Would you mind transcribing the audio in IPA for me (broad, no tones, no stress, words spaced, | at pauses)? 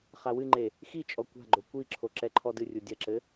χawɨŋ͡ǃe | xit͡ʃʼɔ kʷa̤ɡ͡ǃo kʷiǁʰo ǁɛǃʰɔdɨrʲu dʲɐǁɘ